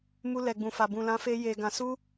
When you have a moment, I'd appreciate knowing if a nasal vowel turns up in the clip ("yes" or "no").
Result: yes